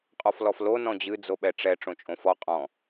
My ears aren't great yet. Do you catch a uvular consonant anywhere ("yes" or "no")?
yes